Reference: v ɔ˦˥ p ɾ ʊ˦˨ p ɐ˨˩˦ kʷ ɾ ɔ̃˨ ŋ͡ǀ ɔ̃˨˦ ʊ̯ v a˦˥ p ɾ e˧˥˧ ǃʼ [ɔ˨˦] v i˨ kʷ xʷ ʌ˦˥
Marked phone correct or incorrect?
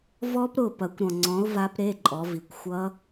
correct